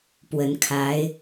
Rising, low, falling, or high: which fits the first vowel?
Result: rising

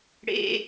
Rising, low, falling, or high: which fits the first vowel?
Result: low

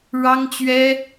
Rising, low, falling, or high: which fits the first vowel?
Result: high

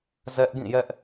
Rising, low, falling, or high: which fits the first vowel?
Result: high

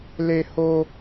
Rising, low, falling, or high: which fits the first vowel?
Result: high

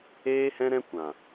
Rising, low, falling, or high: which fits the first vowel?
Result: high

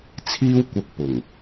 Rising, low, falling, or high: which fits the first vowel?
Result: high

